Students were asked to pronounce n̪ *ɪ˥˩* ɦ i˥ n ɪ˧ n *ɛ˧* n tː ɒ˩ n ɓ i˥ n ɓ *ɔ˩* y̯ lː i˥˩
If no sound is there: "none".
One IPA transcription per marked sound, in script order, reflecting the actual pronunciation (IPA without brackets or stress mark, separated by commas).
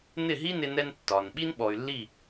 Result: ɪ˥˩, ɛ˧, ɔ˩